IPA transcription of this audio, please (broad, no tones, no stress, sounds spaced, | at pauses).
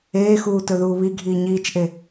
eː x uː t ɵ ð uː β i ɡʱ iː ɲ iː t͡ʃ ʔ e